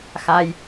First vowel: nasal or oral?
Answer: oral